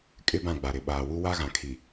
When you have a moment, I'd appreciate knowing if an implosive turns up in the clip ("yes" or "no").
yes